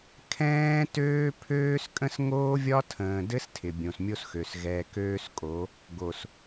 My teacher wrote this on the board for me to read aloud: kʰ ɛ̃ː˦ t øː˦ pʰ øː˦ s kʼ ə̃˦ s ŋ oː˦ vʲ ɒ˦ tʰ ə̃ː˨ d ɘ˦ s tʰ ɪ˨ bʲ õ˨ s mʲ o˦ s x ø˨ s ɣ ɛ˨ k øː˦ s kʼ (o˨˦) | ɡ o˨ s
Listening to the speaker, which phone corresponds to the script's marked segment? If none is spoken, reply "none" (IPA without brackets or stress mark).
o˨˦